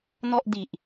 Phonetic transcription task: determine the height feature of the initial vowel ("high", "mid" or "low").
mid